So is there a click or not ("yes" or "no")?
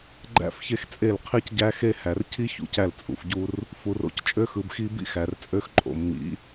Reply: yes